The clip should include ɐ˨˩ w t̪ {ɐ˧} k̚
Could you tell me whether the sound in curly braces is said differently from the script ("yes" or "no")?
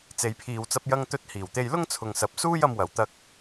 no